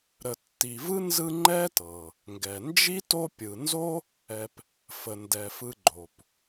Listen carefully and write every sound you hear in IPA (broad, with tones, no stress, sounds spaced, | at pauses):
ɾ ə˨ tː i˨ v ɯ˥ n z ɯ˦ ŋ͡ǃ ɛ˥ t ɤ˩ | ŋ ɡ ɛ˩ n d͡ʒ i˥ t o˦ pʲ ɯ˨ n z o˥ | ɛ˨ p | f ə˩ n d ɛ˩ f ɯ˨ ɡ͡ǃ o˩ p